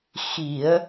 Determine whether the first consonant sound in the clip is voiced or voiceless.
voiceless